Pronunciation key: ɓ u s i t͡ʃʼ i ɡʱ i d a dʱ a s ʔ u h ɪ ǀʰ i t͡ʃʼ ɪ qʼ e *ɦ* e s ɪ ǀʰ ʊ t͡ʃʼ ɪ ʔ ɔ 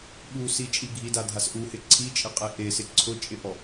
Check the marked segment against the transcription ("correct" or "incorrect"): incorrect